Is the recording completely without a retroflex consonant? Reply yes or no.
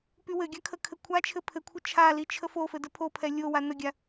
yes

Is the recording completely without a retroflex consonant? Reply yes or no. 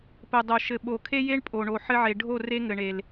no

